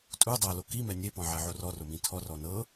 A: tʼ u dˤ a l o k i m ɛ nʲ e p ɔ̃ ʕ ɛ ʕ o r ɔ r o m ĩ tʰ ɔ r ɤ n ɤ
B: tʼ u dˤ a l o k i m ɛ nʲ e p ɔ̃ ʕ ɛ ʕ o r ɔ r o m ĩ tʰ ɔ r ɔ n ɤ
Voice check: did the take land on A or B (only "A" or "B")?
B